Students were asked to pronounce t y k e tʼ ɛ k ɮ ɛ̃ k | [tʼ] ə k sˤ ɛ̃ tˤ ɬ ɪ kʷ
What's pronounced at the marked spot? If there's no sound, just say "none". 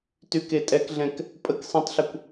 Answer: pʼ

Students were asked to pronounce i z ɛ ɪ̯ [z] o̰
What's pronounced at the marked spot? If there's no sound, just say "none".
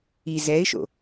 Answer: ʃ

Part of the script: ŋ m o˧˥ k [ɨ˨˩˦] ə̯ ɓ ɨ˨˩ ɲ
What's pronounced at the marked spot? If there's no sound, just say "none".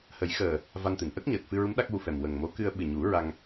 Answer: ɨ˧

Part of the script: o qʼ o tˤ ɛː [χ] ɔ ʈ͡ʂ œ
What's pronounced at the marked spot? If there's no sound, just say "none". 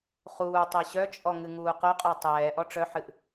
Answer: ʔ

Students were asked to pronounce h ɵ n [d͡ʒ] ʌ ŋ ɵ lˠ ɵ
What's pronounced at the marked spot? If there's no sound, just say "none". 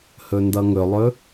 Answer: d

